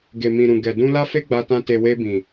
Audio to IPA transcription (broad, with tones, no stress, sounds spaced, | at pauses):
ɡ e˨ m ĩ˨ ɾ ũ˨ ɡ ɛ˨ d ũ˧ l a˦ f e˦ ɡ͡b a˧ t ã˧ t e˨ w e˧ b ĩ˨